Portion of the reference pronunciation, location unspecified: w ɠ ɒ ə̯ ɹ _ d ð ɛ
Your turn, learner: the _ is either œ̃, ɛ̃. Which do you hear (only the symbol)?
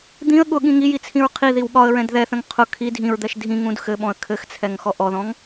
ɛ̃